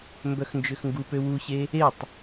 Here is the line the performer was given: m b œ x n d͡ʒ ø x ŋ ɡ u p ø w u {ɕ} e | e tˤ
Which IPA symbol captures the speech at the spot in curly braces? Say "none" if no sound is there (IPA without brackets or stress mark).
ɕ